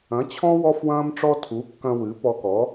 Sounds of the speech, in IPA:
ɐ̃˩˥t͡ɕʰɔ̃˥ wɔ˥fwɐ̃ː˥mʈ͡ʂɔ˥ tʰu˩˥kːɐ̃˧ wɨ˩˥pɔ˧kɔ˩˥

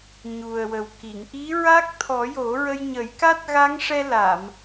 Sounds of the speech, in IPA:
ɲu˨˩ə̯wə˨˩wki˨˩˨ŋ ʔi˧˥ɹa˦˥k̚t̪ʰɔ˨˩˦ jo˨˩˦ɹə˧j ɲə˨˩˦jka˦˥t̚ɣa˧˥ŋʂɛ˧ la˨˩˨m

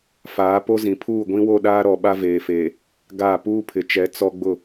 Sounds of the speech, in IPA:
faː˨˦po˦ zĩ˨pʰuː˦˨ ɡʷĩ˦wo˦˨ɗaː˦ ɾɔ˨ɓa˦veː˨feː˨ | ɡa˦˨ puː˦pʰɪ˨t͡ʃɛ˨˦ t͡sɔ˦ɡ͡bʊ˦˨

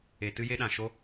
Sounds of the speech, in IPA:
e˨tɨ˦ je˦ɗã˨ʃo˦

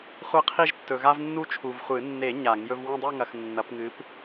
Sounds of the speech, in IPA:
χʷɐ˦qʰi˦ʒtːɵ˨ɣa˦v nːu˦t͡ʃʰu˨vχʷɨ˨˩˦ nːe˨˩˦ ɲa˨˩˦ŋjɵ˦v wɐ̃˥˨dˤʉ˥˨ŋɐ˨x nːɐ˨˩˦pŋɨ˨˦p

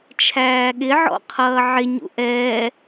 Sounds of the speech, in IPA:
t͡ʃʰæːɠɪʕɔ̰ qʰʌːʕɪ ɲṵʔɛː

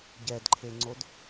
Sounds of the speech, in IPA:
ɟɛdǃʰeŋ͡ǀod

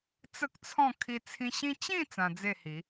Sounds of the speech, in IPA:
t͡sə˦k̚t͡sʰɔ̃˥˧ kʰi˧t͡sʰĩ˧ɕĩ˦ t͡ɕĩ˥˧ t͡sã˧d͡ze˥˧hi˨˦

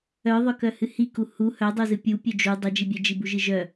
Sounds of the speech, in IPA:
œðˤœkœ hɨhiku hu hœdˤuzɨ pʲu pʲœd͡ʒu dˤœd͡ʒibʲœd͡ʒi buʒɨʒœ

